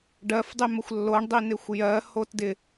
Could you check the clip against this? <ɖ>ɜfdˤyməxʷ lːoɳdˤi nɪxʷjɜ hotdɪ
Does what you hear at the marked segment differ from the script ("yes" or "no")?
no